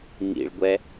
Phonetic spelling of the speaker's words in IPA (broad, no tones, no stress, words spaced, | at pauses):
ŋḭɭɡʷɛ